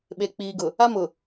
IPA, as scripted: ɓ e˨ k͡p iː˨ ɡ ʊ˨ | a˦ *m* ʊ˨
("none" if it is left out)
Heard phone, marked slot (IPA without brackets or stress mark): m